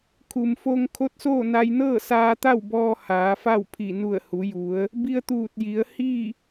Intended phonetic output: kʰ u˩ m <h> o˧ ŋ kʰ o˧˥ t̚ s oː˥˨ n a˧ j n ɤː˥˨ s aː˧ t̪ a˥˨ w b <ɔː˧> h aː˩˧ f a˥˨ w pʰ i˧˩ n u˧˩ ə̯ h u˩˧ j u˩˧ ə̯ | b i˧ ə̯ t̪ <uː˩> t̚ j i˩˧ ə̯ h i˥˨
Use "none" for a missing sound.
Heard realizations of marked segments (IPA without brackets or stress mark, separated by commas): f, ɔː˧, uː˧˩